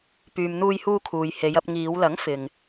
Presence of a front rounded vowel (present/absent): present